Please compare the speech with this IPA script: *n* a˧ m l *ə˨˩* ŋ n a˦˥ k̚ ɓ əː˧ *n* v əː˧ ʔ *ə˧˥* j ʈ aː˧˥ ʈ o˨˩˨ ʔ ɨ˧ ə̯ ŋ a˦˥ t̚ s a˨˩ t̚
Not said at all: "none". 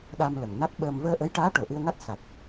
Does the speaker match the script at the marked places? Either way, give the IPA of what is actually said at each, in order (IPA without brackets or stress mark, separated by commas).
ɗ, ə˨˩, m, ə˧˥